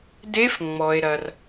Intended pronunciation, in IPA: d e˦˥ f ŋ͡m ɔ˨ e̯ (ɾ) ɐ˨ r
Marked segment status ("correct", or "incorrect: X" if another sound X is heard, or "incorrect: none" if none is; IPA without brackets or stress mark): correct